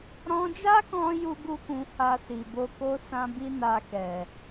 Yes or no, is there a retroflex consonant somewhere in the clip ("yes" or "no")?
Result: no